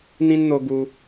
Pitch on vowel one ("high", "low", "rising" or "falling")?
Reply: high